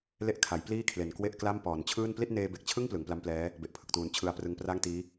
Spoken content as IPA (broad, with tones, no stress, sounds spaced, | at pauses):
l e˦˥ ʔ kʰ a˩˦ j p l iː˥˩ kʰ l e˨˩ n k w e˥˩ ʔ k l a˥˩ m p ɔː˩˦ n t͡ɕʰ ɯː˥˩ n p l i˥˩ t̚ n eː˧ b e˨˩ k̚ t͡ɕʰ ɯ˥˩ ŋ p l ɯ˩˦ ŋ p l a˦˥ m p l ɛː˦˥ | b e˨˩ ʔ pʰ ɯ˨˩ k̚ t uː˨˩ n t͡ɕʰ ɯ˧ a̯ p r ɯ˧ ŋ p r a˥˩ ŋ t iː˦˥